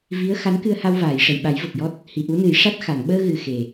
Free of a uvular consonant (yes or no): yes